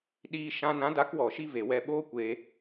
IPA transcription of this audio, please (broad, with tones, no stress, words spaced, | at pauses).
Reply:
ɗiː˧ ʃã˧ nã˨˦da˨˦kwɔ˨ʃi˧ ve˨wɛ˧ ɓoː˦kʷeː˧